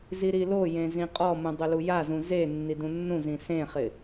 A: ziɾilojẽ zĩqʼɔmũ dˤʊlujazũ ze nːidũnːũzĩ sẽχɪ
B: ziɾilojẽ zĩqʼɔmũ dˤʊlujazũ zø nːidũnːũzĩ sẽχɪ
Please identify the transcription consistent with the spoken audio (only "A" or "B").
A